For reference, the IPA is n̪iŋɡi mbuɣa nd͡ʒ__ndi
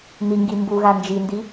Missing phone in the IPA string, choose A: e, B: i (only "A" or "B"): B